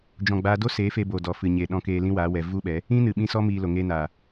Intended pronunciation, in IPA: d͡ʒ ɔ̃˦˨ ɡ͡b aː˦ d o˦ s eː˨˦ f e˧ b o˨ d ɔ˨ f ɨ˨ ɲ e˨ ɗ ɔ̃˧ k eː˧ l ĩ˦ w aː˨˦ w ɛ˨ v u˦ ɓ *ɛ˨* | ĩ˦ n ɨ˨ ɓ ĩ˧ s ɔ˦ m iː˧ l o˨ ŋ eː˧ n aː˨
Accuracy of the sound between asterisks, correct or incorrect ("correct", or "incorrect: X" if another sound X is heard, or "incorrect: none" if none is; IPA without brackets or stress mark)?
incorrect: ɛ˨˦